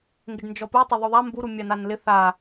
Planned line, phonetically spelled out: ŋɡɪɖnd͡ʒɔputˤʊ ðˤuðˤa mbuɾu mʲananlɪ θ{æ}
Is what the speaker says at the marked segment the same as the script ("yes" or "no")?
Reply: no